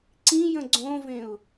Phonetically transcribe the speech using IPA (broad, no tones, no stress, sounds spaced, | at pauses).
ǀ ĩ j ə̃ ɡ͡ǀ õ v ẽ ʊ̯